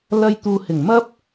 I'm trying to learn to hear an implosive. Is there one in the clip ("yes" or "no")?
no